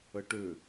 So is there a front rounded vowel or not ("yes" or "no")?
yes